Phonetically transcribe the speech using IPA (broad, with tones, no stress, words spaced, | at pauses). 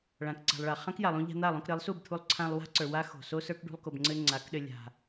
ɭã˨kǀa̤˨lˠ ɭa˨χã˦kja˨lˠũ˧ ʎa̤˧n̪a˦˨lˠõ˧k ɾɘ˨˦lˠsu˦˨bt̪ʰu˧lˠ ǀʰã˧lˠ wa̤˦ǀə˞˨ wa˦ xo̤˨ so˦sə˞˦k ɖṳ˧lˠko˨bŋ͡ǀɘ˧ ŋ͡ǀa˨˦kɗɘ˧ lʲa̤˨